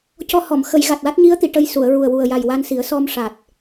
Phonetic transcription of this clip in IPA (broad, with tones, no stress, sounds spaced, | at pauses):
c ɔ˧ h ɔ˨˩˨ m x ə˨˩˨ j ɣ a˨˩ t̚ w a˦˥ t̚ ɲ i˧˥ ə̯ t̪ i˨˩˨ ʈ ə˧ j s u˨˩˨ ə̯ ɹ u˨˩ ə̯ w u˨˩ ə̯ j a˨˩ j w a˧ n s i˨˩˦ ə̯ s ɔ˧ m ʂ a˨˩ t̚